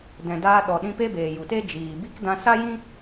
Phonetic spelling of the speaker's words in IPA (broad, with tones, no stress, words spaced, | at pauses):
dɛ̃˨daː˧ ɗɔ˨ɗĩ˧ pe˦beː˨ju˨te˦ d͡ʒiː˨bi˦k dã˧sa˦jĩ˦